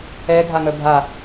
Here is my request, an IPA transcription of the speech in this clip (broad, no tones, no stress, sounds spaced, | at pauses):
ɛ ɡʱ a ŋ œ bʱ a